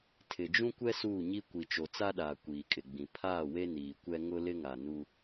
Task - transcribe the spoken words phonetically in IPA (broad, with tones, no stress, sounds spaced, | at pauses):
tʰ ɪ˨ d͡ʒ ũ˦ kʷ ɛ˦ s uː˦˨ ɲ i˦ kʷ i˨ t͡ʃ o˨ t͡s a˦ ɗ aː˨ kʷ iː˨ kʼ ɪ˨ ɡ͡b ĩ˨ pʰ aː˦˨ w e˦ n iː˨ kʷ ɛ˦ ŋ ʊ˦ l ɪ˦ ŋ a˨ n u˦